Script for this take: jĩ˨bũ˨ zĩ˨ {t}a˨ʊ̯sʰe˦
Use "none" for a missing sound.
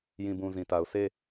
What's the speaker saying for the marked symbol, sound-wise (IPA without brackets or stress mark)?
t